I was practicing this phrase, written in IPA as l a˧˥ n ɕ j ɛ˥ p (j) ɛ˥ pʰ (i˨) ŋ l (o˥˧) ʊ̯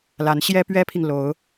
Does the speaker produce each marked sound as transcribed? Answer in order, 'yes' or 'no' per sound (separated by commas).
no, yes, no